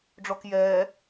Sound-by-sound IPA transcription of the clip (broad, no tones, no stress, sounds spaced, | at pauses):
ɖ͡ʐ ɔ k j ɛː